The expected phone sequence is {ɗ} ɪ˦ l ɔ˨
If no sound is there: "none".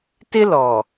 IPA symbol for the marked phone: t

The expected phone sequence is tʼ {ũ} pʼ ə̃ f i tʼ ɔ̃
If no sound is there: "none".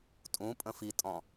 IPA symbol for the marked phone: ũ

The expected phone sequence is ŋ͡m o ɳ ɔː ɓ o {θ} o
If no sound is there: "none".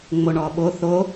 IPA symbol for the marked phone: θ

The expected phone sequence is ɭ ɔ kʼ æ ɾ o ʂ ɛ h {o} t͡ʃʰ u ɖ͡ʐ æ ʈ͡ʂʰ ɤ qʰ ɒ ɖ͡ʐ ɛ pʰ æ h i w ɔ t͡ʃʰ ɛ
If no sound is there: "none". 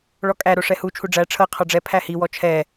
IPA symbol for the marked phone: u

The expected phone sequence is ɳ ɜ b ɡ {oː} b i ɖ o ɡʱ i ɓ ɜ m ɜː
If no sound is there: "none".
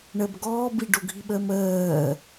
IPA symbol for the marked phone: ɔː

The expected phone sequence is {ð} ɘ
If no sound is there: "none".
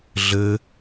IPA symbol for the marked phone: ɮ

